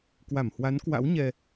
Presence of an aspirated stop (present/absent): absent